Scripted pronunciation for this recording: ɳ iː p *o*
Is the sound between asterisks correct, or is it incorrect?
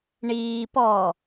incorrect